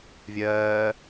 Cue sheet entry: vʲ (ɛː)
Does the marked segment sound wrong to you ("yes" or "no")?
yes